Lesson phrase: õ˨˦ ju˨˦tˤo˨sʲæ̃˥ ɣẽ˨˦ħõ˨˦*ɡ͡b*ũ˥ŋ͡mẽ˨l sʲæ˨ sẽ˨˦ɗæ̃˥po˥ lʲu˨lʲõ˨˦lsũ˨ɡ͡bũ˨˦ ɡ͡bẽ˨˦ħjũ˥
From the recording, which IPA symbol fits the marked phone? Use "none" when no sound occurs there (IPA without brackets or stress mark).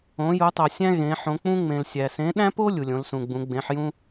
k͡p